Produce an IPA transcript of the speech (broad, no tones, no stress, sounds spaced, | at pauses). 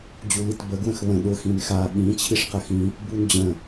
d͡ʑ u l i t b ə ɡ w ə̃ x β ə̃ ɗ ʊ x ĩ n x a ɓ ĩ t͡ɕʰ i ʂ q ə x ĩ | b u n d͡ʑ ə̃